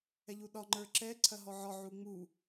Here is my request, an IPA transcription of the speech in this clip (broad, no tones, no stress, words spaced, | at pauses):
ɛʎuɗɒ ŋ͡ǃə˞ǁɛ ǀʰɐɦɔʕɒ ʕuŋ͡mu